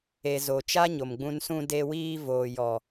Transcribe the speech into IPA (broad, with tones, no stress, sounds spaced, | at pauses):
e˨ z o˨ t͡ʃ a˦ ɲ o˨ m ɡ͡b ũ˧ n s ũ˧ d e˧ w iː˧ v oː˨ j ɔ˨